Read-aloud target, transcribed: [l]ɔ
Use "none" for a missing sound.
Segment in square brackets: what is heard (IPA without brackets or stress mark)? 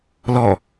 l